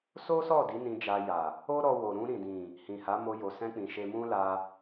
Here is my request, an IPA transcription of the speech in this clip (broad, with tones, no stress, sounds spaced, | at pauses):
s o˦ s ɔ˦˨ d i˨˦ n ĩ˧ d͡ʒ a˧ j a˨ | o˦ ɾ ɔ˧ w o˨ ɾ ũ˧ ɾ ĩ˨ d ĩ˨ | h ĩ˨ h a˨˦ m o˧ j o˨ s ɛ̃˧ k͡p ĩ˨ ʃ e˧ m ũ˦ l a˧